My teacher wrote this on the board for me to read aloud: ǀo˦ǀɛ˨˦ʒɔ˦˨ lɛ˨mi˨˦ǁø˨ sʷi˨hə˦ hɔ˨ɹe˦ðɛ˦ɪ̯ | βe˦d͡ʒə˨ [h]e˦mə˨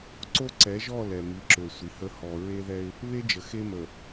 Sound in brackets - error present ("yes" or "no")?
yes